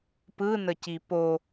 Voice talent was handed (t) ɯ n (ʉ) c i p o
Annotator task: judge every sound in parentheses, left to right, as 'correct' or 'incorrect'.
incorrect, incorrect

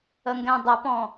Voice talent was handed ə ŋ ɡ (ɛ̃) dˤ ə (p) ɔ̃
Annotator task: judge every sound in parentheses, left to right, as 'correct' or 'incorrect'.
correct, correct

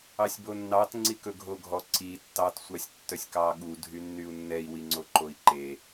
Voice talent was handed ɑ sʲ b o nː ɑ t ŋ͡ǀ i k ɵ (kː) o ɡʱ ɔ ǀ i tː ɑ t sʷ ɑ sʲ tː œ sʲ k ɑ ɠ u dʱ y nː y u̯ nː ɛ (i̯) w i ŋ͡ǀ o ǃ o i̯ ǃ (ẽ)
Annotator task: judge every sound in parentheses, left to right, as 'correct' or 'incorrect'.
incorrect, correct, incorrect

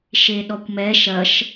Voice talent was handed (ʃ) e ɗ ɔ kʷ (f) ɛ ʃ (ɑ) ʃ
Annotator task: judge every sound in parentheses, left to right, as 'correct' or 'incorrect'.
correct, incorrect, incorrect

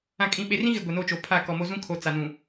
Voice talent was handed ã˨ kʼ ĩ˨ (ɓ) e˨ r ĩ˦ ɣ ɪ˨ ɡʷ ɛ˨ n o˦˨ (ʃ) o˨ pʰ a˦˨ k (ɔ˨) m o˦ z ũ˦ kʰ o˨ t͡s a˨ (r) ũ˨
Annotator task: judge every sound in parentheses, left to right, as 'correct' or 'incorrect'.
correct, incorrect, correct, incorrect

